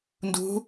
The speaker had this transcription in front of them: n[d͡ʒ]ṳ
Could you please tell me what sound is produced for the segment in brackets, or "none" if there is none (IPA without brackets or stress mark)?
d